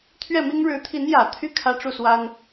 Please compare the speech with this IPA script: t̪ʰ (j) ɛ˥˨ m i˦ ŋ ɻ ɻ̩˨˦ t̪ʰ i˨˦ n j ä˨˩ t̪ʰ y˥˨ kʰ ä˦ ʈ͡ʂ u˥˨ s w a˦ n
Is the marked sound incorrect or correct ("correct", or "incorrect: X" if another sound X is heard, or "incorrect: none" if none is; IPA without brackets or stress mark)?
incorrect: ɥ